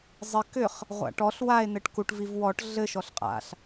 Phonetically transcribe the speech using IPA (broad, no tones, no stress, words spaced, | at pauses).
zˤɪ kʏχ | ʁʷa̰ʈɔɬ wae̯ n̪ɘʈkuʈ vivwɔʈ ɮɘ ʃɔɬqʼa̰ɬ